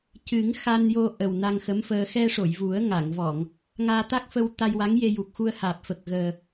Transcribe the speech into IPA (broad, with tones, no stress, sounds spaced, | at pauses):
c ɨ˨˩˦ ŋ x a˧ n j o˧ ʔ ə˨˩ w n a˧ ŋ x ə˧˥ m f əː˧ x ɛ˧ ʂ o˨˩˨ j v u˨˩˦ ə̯ ŋ a˨˩˨ ŋ v ɔ˨˩˨ ŋ | ŋ aː˧ t̪ a˦˥ k̚ f ə˧ w t̪ a˧ j w a˧˥ ŋ j e˧ j u˨˩ k̚ x u˧ ə̯ h aː˨˩ p̚ f ə˨˩ k̚ ɣ əː˨˩